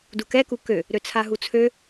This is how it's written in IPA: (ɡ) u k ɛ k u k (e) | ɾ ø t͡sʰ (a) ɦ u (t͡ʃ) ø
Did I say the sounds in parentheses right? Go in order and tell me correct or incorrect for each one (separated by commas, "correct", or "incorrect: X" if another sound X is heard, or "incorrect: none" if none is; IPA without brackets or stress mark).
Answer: incorrect: d, incorrect: ø, correct, incorrect: t͡sʰ